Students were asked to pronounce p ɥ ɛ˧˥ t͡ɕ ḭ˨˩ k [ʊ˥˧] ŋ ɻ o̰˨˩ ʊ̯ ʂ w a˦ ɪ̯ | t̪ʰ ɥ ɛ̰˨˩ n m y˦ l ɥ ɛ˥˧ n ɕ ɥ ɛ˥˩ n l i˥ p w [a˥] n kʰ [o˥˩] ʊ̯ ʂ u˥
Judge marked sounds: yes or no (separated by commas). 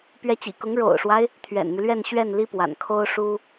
no, no, no